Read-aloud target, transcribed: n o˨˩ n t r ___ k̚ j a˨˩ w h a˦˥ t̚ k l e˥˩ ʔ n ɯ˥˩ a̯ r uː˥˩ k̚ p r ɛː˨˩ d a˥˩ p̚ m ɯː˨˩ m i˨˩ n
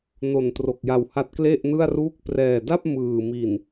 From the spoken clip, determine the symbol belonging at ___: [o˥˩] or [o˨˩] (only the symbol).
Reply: o˨˩